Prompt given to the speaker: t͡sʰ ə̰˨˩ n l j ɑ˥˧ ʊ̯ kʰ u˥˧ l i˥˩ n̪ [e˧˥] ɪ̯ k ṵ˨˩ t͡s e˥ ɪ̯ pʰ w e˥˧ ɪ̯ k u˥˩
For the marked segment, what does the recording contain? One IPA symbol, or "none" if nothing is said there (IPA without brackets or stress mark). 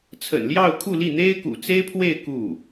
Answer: e˥